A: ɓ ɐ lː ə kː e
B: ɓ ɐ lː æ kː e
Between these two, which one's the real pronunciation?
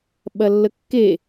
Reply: A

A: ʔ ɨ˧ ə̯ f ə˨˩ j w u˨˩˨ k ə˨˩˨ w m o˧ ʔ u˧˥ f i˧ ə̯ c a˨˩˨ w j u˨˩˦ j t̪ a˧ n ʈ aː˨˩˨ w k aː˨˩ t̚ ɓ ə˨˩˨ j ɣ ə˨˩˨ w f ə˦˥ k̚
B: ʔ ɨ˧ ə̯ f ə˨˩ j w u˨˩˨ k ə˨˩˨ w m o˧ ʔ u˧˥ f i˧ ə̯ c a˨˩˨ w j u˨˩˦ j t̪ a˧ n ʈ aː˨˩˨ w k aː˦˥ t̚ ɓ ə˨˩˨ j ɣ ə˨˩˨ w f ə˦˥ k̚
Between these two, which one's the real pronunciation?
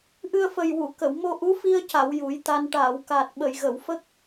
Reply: A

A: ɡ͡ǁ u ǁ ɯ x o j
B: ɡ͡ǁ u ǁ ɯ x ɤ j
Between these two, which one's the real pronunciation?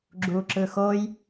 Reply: A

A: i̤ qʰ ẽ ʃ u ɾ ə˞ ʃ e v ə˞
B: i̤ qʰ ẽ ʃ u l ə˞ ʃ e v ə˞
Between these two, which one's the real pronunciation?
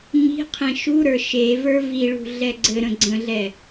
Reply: A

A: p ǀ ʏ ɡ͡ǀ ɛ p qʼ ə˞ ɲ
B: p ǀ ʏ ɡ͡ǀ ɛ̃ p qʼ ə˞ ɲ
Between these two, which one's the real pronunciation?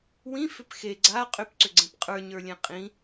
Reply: B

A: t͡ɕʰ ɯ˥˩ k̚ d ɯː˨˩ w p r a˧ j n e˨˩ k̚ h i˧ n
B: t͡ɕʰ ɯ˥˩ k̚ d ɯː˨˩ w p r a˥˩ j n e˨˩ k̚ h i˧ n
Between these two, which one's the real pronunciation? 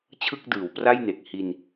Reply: B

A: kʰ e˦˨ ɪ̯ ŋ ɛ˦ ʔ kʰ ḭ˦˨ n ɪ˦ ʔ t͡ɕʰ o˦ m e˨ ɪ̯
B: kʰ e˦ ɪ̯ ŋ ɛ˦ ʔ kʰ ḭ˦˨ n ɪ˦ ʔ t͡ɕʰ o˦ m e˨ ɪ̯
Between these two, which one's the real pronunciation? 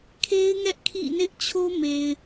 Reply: B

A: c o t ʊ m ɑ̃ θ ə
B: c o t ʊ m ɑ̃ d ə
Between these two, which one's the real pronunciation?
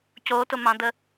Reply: B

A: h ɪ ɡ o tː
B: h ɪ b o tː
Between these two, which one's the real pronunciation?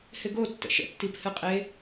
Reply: A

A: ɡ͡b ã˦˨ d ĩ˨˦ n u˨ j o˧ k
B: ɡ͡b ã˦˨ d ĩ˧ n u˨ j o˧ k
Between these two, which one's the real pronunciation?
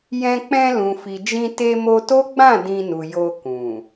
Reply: B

